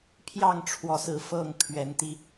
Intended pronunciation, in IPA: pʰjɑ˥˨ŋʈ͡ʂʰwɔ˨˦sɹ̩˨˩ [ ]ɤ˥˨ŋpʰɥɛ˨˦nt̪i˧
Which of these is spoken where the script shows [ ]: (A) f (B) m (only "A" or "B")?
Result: A